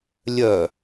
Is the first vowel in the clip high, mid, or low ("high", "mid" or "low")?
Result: mid